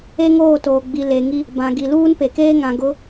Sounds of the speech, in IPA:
e˦ ŋ oː˦˨ t oː˨ ɡ͡b i˨ l e˨ ŋ i˦ | b ã˨ ɡ i˨ l uː˦ n p e˨ k eː˦ ŋ ã˨ ɡ ʊ˨˦

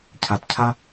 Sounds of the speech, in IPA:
cʰ a˨ t cʰ a˧

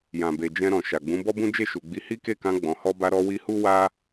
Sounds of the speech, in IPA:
j ã˨ b e˨ d͡ʒ ɛ̃˧ ɾ ɔ̃˨ ʃ a˨ ɡ͡b ũ˨˦ b ɔ˦ b ũ˦ d͡ʒ e˦˨ ʃ u˨ ɡ͡b i˨˦ h i˦ k e˦˨ k ã˧ ɡ͡b ɔ̃˨ h ɔ˧ b a˧ ɾ ɔ˧ w i˧ h u˦ w a˦

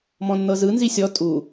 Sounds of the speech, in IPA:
m ɔ̃ nː ɤ z ɯ n z i sʲ ɔ tʼ u

